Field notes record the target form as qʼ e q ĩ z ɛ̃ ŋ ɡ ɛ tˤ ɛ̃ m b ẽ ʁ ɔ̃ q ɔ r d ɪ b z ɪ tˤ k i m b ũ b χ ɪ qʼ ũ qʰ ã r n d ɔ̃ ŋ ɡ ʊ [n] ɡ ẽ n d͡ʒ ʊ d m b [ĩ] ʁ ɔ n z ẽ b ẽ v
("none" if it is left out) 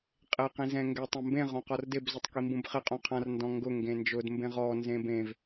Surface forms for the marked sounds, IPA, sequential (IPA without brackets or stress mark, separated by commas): ŋ, ẽ